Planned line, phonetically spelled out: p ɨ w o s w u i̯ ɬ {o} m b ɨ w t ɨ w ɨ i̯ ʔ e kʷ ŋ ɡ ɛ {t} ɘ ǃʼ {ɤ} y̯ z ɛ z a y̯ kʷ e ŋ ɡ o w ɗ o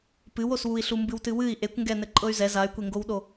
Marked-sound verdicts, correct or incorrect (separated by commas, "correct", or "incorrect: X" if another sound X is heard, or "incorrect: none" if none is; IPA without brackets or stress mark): incorrect: u, incorrect: n, correct